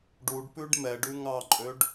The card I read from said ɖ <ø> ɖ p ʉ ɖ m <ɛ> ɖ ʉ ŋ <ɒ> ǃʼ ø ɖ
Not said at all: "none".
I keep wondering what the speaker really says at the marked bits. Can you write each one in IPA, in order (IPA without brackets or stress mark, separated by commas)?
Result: u, ɛ, ɑ